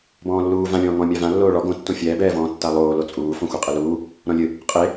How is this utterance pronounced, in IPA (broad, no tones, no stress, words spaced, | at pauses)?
bɔ̃ːlːuː vãlʲɔ̃ː ŋɔ̃mʲa vã lːoːɭɔ ɡõ tːõfʲɛːbɛːvɔ̃ː tːalˠoː lot͡sʼuː fɔ̃xʷɛqʼɨluː | ɾɔ̃lʲɨ | qʼe